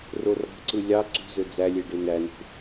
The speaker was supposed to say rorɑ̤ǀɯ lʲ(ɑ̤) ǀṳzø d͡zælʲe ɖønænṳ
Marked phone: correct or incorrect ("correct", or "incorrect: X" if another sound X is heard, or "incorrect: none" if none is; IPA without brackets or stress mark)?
incorrect: ɑ